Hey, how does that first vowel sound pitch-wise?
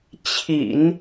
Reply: low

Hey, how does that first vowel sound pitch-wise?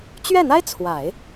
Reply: falling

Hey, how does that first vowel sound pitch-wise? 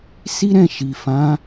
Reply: high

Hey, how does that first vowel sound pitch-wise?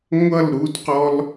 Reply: falling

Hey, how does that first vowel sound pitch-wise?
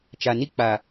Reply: low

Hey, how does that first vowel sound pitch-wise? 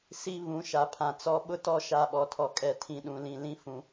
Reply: falling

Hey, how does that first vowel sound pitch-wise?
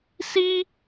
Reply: high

